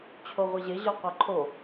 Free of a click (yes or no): no